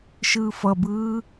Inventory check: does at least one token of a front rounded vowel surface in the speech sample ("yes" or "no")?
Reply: no